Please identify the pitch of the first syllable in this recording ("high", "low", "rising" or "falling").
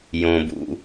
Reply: low